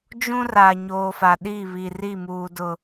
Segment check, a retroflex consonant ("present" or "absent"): absent